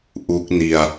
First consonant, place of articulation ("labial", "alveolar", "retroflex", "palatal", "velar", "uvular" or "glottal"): glottal